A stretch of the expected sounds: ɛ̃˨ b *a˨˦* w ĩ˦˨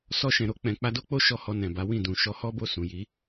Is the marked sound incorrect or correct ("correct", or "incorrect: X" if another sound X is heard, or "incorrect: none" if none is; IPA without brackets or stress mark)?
correct